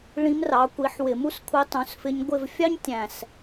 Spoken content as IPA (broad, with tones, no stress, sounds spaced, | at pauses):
ɭ ĩ˧˥ m r ɑ˩˥ kʷ i˩˥ ħ w ɪ˧˩˧ m u˥ s kʷʰ i˧˥ tˤ ũ˩˥ s f ɪ˧˥ ɲ ɡʷ ɪ˦˨ v fʲ ɑ˥ ɲ tʲ æ̃˨˩ s